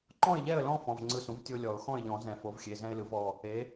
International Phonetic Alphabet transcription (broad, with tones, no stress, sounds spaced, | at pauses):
ǃ ɔ̃˥˨ ɪ̯ ʎ ɛ˥˨ ə̯ l ɔ̃˦ f ɔ̃˩˧˩ v ŋ͡ǀ ɯ˧˩ s ũ˩˥ v tʲ o˦ lʲ ɔ˨˩˦ ʊ̯ x ɔ̃˥˨ ɪ̯ ʎ ɔ̃˨˩˦ z ɛ̃˨˩˦ f o˩˥ v xʲ e˩˧˩ z ɛ̃˦ ɪ̯ l ɯ˩˥ v ɔ˩˧˩ | e˩˥